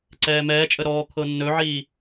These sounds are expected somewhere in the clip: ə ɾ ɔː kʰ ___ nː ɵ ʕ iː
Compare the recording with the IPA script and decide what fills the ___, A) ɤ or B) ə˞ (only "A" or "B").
A